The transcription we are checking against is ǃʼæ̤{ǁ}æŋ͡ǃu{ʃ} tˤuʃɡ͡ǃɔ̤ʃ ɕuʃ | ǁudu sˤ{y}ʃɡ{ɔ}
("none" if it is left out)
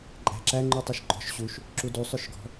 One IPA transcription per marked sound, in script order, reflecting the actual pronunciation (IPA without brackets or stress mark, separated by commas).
ǁ, none, ʏ, ɔ̤